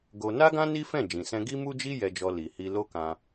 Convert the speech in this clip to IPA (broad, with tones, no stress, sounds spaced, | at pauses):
ɡ o˧ n a˦ ɡ ã˦ n i˦ f ɛ̃˦˨ d͡ʒ ĩ˨ s ɛ̃˧ ɡ i˦ m u˦ d͡ʒ i˦ j ɛ˧ d͡ʒ ɔ˧ l i˨ h i˧ l o˦ k ã˧